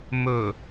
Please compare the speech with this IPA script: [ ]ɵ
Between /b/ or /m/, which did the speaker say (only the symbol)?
m